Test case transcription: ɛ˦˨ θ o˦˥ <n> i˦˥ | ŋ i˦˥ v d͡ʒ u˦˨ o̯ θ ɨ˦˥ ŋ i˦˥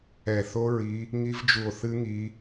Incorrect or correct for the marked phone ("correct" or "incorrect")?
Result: incorrect